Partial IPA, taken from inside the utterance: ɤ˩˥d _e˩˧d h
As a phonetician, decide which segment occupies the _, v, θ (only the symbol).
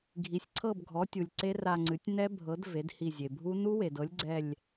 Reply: v